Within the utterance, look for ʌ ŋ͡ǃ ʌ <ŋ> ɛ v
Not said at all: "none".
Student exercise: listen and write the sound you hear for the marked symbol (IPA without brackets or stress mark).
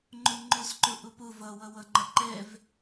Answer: ǃ